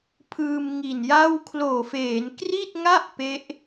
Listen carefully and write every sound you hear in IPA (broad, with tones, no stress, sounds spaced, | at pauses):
pʰ ɯː˧ m ŋ i˨˩ n j a˥˩ w kʰ l oː˨˩ f eː˩˦ n k r i˥˩ t̚ ŋ a˥˩ ʔ p e˦˥ ʔ